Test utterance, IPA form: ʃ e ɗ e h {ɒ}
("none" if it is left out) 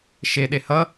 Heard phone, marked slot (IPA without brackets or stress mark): ʌ